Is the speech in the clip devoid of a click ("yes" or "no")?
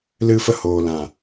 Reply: yes